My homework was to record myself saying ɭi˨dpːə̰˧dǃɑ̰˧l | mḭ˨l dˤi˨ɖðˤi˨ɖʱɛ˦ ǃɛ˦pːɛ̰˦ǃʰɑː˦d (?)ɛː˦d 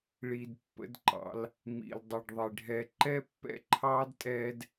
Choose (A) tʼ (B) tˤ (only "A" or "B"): A